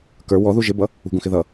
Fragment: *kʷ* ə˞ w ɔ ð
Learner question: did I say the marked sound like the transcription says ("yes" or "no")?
no